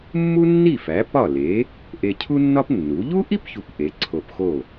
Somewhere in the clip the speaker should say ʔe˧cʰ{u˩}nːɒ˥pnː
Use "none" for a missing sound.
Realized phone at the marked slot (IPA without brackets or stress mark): u˥